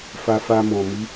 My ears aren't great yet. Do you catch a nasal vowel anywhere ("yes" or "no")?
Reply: yes